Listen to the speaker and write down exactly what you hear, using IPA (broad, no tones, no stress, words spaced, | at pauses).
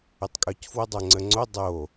ʏtˤkʼœcfwə dˤœŋ͡ǀəŋ͡ǀo dˤo